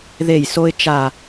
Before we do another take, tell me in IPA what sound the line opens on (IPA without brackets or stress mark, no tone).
ð